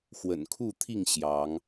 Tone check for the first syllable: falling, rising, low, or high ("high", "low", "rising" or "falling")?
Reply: low